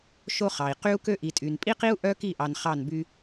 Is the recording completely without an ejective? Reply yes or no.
no